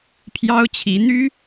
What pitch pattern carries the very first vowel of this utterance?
high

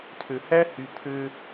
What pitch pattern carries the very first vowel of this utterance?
low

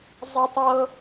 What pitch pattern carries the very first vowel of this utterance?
high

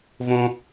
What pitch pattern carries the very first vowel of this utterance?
high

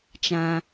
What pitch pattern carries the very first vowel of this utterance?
high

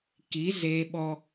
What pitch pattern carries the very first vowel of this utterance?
rising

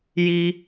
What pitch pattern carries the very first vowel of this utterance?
high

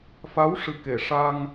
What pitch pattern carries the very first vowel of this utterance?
rising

